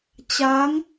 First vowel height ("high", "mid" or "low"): low